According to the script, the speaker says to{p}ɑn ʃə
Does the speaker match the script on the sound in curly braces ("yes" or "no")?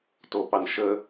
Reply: yes